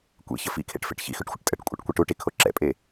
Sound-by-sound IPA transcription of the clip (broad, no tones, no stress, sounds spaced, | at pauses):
kʷ ḛ ç ə f ḭ kʰ ḛ ʈ f ḛ ʈ ç ḭ x ʉ ʈ xʷ ə ʈ tʼ ə ʈ kʷʼ ə̰ ʈ kʷ ɛ ʈ u ʈ i kʰ o ǁ ɛ̰ pʼ e